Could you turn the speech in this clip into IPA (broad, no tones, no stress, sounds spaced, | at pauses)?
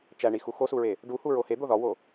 t͡ʃ æ ɳ i x u x o s u ɹ e | ɖ u h u ɹ o h e d̪ o ð ɒ w o